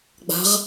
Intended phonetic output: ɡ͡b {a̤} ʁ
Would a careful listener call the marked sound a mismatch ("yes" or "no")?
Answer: no